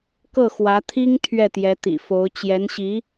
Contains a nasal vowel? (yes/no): no